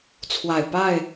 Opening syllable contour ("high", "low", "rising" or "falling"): low